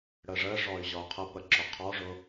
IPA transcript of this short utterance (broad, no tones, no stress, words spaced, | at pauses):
ɽəʐəʐɔy̯ ʑɒu̯qʰəpə ǁʊqʰɔʐʊ